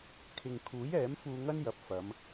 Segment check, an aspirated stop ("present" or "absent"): present